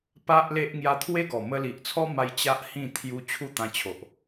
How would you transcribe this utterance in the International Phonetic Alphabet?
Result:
p a˦ ʔ l e˦ ʔ ŋ j a˧ t̪ʰ w e˦ ɡ ɔ˨˩ m ə˧ l i˨ ʔ t͡sʰ ɔ˦ m a˧ j t͡ɕ a˦ ʔ h ĩ˥˧ t̪ʰ j u˧ t͡ɕʰ u˥˧ t̪ ã˧ t͡ɕʰ o˨ ʔ

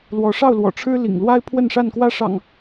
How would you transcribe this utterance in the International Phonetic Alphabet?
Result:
l w ɔ˨˦ ʂ ɑ˥˨ ʊ̯ l w ɔ̰˨˩ ʈ͡ʂʰ ɻ̩˦ l ḭ˨˩ ŋ l w a˦ ɪ̯ pʰ w ə˥˨ n ʂ a˥˨ n k w ä˥˨ ʂ ɑ̰˨˩ ŋ

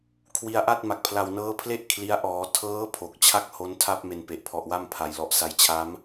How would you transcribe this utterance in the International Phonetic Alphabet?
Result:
kʰ w i˧ a̯ ʔ a˥˩ t̚ m a˨˩ k̚ pʰ l a˨˩ w n ɤː˦˥ pʰ l e˥˩ ʔ kʰ l i˦˥ a̯ ʔ ɔː˩˦ tʰ ɤː˦˥ pʰ o˨˩ k̚ t͡ɕʰ a˥˩ k̚ h o˦˥ n tʰ a˥˩ p̚ m e˧ n p e˨˩ ʔ pʰ ɔ˨˩ ʔ w a˥˩ m pʰ a˩˦ j l ɔ˨˩ ʔ s a˧ j t͡ɕʰ a˦˥ m

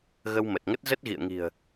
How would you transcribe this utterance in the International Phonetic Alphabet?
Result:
ɣ ə˧ w m ə˨˩ t̚ ŋ ə˦˥ t̚ z ə˦˥ t̚ ɣ ḭ˧˨ ə̯ ŋ i̤˨˩ ə̯

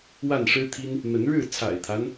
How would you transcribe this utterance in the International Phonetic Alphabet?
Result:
w a˥˨ n ʂ ɻ̩˦ t̪ʰ i˦ n | n̪ ə˨˦ n ɻ ɻ̩˥˨ t͡sʰ a̰˨˩ ɪ̯ t̪ʰ a˦ n

